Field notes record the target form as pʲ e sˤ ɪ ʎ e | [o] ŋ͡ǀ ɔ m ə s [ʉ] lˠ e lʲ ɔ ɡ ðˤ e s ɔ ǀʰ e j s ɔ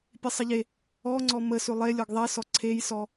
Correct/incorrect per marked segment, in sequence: incorrect: ɔ, correct

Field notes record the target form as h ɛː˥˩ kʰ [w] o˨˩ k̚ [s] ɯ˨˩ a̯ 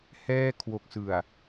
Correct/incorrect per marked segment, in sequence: correct, correct

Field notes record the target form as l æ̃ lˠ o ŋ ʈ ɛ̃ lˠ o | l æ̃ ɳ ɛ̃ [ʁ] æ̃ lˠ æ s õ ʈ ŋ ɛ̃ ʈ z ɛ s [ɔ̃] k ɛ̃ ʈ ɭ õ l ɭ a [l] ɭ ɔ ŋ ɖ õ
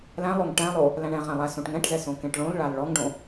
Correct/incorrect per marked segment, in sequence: correct, incorrect: õ, correct

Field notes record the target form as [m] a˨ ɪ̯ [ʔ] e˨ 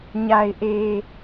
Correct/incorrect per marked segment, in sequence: incorrect: ɲ, correct

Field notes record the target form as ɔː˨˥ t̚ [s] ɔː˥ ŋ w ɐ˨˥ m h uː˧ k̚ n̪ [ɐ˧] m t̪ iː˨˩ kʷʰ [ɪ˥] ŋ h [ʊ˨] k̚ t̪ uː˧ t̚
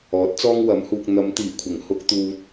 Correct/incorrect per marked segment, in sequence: incorrect: t͡s, incorrect: ɐ˨˧, incorrect: ɪ˨˩, incorrect: ʊ˥

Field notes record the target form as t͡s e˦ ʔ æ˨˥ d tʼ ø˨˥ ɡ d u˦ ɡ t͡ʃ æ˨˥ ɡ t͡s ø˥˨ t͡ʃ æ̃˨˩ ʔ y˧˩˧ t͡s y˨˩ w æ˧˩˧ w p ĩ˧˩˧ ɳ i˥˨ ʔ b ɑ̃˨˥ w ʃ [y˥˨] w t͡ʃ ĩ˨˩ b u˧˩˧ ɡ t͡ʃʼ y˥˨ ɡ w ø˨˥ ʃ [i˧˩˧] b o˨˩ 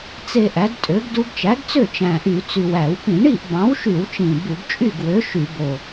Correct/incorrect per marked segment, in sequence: incorrect: y˧˩˧, incorrect: y˧˩˧

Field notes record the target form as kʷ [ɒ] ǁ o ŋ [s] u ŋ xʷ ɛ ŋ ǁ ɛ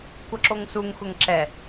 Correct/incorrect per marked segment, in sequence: incorrect: ʌ, correct

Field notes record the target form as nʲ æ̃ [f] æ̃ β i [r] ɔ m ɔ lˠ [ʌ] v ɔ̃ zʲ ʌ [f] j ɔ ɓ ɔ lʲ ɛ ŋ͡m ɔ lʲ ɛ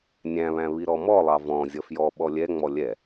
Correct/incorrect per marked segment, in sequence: incorrect: β, incorrect: ɾ, incorrect: ɑ, correct

